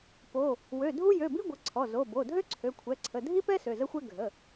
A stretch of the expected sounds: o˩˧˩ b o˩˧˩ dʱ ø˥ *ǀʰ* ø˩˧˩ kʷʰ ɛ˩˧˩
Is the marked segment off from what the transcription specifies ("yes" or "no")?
no